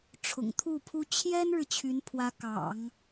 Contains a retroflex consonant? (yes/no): yes